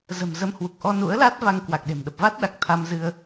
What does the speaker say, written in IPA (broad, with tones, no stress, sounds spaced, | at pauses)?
z ə̤˨˩ m z ə˧ m h w u˨˩ k̚ ʔ ɔ˧ n ṵ˧˥ ə̯ l a˦˥ t̚ v a˧ ŋ k w a˨˩ k̚ ɗ e̤˨˩ m ɗ ə˨˩ p̚ v a˦˥ t̚ ɗ a˨˩ k̚ t̪ʰ a˧ m z ɨ˧ ə̯